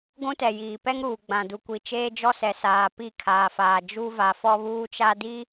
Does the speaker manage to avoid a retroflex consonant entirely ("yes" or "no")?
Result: yes